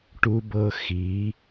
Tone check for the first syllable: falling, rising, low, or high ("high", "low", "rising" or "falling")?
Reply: high